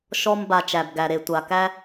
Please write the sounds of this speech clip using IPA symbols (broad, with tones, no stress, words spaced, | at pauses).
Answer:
ʃɔ˦m ba˧t͡ʃæ˨b ɡæ˨ɾe˨ tʷa˨kæ˦